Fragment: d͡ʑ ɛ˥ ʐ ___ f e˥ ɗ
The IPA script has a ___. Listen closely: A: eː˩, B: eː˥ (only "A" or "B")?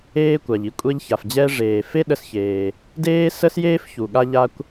A